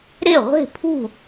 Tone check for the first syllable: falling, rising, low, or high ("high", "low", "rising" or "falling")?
falling